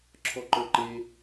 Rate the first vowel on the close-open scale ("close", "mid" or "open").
mid